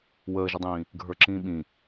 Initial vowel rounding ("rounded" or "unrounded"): unrounded